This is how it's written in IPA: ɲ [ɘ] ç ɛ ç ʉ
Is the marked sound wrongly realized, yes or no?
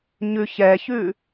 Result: yes